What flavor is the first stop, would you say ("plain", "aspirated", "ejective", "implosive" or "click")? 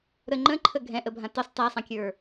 click